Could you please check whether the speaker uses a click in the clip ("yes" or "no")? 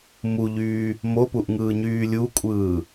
no